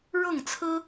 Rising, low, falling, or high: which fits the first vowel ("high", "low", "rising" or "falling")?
falling